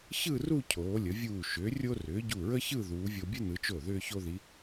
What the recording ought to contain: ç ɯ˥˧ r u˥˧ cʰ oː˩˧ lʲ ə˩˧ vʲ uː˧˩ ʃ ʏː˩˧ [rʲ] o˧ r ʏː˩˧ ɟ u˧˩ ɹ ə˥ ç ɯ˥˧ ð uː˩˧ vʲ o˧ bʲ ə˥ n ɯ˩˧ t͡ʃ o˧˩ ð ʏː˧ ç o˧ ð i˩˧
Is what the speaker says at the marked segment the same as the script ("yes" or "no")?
yes